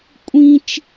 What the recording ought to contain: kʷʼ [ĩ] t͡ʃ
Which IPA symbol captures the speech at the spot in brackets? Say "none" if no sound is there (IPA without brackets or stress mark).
ĩ